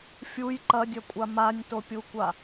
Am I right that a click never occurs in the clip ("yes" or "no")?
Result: no